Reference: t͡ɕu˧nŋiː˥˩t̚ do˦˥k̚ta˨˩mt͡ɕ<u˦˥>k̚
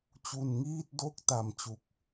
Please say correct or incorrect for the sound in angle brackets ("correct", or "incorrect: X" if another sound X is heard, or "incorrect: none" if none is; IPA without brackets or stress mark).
incorrect: u˨˩